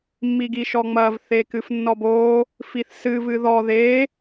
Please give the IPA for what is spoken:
mː i ɡ i ʃ ɔ ŋ͡m ɐ v θ e k ɨ f nː ɔ b o | f i θ s ɨ v ɨ ð ɔ ð e

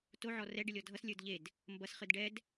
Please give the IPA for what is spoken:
t o ʕ ɔ r ɛ ɖ ɨ lʲ ɔ dʱ ʌ s lʲ ə˞ d ʎ e d | m b ʌ s χ ɨ d ɖ ɛ d

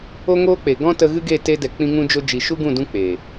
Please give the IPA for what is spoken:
o˦ ŋ oː˦ k͡p e˨ ɡ ɔ̃˦ t ə˧ ɣ ɨ˦ ɡ e˦˨ t e˧ d ɛ˨ k͡p ĩ˧ ŋ ũ˧ d͡ʒ o˧ d͡ʒ i˨ ʃ u˦ ɡ ũ˦˨ d ũ˧ k͡p e˨

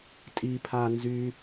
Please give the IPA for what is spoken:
tʼ i pʰ a n z y

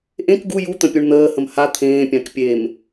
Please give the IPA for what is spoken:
ʔ ẽ k ɡ u j u t̪ ə̃ pʲ u ɳ n̪ əː h ə̃ m h a t̪ʰ ẽː pʲ ã k pʲ e m

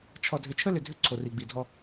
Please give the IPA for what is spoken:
t͡ʃʰ ɔ˨ dʱ ʏ˨ t͡ʃʰ ə˦ l ʏ˨ dʱ ʏ˦ ǀʰ o˨ r i˨ ɡ͡b i˨ dʱ ɔ˦

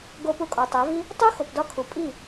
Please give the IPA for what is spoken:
ɡ o˧ p u˧ kʼ ɒ˨ tˤ æ˨˦ v i˦ | tˤ u˦ x o˨ p d ɒ˦ kʰ u˨ pʼ i˦˨

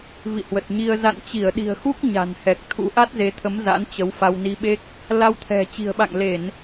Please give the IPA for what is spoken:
v ḭ˧˨ h w ə˨˩ t̚ ɲ i˧ ə̯ z a̰˧˨ n t͡ɕ i˧˩ ə̯ ɗ i̤˨˩ ə̯ x u˦˥ k̚ ɲ a̤˨˩ n h ɛ˨˩ k̚ t̪ʰ ṵ˧˥ ʔ a˦˥ t̚ z e˨˦ t̪ʰ ə˨˦ m z a̰˧˥ n t͡ɕ ə˨˦ w f a˧ w n i˧ ɓ e˦˥ k̚ | l a˧ w t̪ʰ ɛ̤˨˩ t͡ɕ i̤˨˩ ə̯ ɓ a̰˧˨ ŋ l e˧˩˨ n

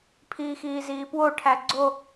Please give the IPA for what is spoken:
pʰ iː x iː z iː p w o ʈʰ æ ɡ͡ǀ o

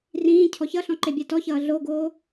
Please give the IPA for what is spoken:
r ĩː cʰ ɔ ç ʌ ɬ ɔ̃ ǃ e bʲ a t ɔ ç ʌː ɮ o ɡ oː

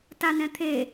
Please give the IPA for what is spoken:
t a n ɛ̃ t̪ʰ e

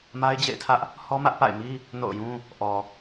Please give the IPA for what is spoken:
m a˦ ɪ̯ d͡ʑ ḛ˦˨ ɪ̯ tʰ ä˦ ʔ | h ɔ˦ m ä˦ ʔ p a̰˦˨ ɪ̯ m i˦ | n o̰˦˨ ʊ̯ j ũ˦ | ʔ ɔ˨

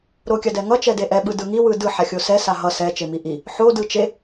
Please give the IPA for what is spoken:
ɾ o kʲ a d ɛ ŋ ʌ t͡ʃ ɛ d e ʔ ɛ ɓ ɯ d ɯ ŋ i w ɯ d ɯ ħ a xʲ o s ɛ s a ɦ ʌ s ɛ t͡ʃ e m i ʔ i | ħ o d ɯ t͡ʃ e

